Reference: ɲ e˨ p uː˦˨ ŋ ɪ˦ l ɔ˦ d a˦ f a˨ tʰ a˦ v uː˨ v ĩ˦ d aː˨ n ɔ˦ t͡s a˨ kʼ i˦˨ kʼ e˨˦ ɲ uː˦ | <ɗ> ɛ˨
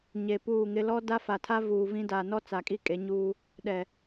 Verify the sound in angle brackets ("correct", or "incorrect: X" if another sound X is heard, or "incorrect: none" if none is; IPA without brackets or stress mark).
correct